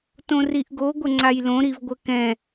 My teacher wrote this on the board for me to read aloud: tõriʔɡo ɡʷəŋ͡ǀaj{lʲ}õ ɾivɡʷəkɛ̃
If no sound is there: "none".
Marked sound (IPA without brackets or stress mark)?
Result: l